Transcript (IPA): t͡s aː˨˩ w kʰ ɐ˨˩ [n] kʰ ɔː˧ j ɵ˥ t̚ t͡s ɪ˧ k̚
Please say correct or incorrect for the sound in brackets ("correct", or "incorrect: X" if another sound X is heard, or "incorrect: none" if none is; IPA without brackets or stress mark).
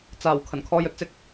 correct